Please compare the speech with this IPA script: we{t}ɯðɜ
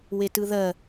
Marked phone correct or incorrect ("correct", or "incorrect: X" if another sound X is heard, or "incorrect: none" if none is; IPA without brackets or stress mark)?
correct